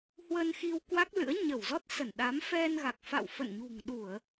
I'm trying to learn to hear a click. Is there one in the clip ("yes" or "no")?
no